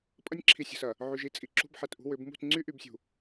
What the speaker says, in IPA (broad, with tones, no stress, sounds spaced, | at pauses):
pʼ ɐ˦ nʲ ǁʰ i˨ sʲ ə̤˨ s ɐ˨ | ʕ y˨ ʒ i˦ t͡sʼ i˨ ǁ ṳ˦ b ħ ɛ˨ t ʔ ṳ˦ w ʏ˨˦ b m ṳ˦˨ t ŋ͡ǀ y˦ ʔ y˨ b sʲ ṳ˨